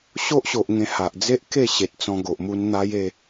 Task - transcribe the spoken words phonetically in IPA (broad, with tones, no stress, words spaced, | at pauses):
ɕo˦ʔɕo˨ʔ ŋẽ˧ha˨ʔ d͡ze˦ʔ ke˥˧ɕe˨t̚ t͡sɔ̃˧ ɡo˨ʔmu˧n n̪a˦j e˥˧